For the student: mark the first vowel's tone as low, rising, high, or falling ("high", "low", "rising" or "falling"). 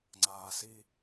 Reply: low